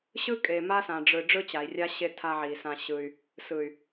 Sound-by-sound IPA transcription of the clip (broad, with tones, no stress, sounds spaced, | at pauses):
ɕ ɯ˦ kʼ e˨ m a˦ s ã˨ ɖ͡ʐ ɯ˨ ɖ͡ʐ ɯ˦ t͡ɕ a˨ i̯ rʲ a˦ ɕ e˦ tʰ a˦ ʕ i˨ s ã˦ ɕ ɯ˦ y̯ | s ɯ˨ y̯